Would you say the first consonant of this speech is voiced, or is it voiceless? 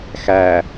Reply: voiceless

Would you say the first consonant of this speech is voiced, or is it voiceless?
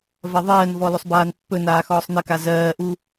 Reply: voiced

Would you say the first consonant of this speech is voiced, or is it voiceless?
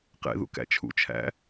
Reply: voiceless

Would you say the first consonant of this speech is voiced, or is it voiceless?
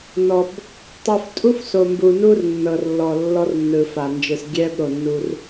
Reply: voiced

